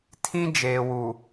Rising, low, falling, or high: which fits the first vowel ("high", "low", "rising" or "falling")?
high